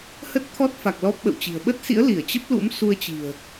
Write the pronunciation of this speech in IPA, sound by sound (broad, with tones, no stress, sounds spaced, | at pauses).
h ə˦˥ t̚ t̪ʰ ɔ˦˥ t̚ f a˨˩ k̚ l ɔ˦˥ p̚ ɓ ə̰˧˨ w t͡ɕ i̤˨˩ ə̯ ɓ ə˦˥ t̚ s ḭ˧˥ ə̯ l i˧˩ ə̯ t͡ɕ ə˦˥ p̚ l ṵ˧˥ m s u˧ ə̯ t͡ɕ i̤˨˩ ə̯